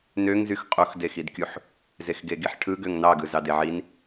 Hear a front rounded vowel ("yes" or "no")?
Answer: yes